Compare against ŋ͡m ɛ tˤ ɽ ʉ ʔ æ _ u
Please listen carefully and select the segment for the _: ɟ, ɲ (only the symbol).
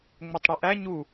ɲ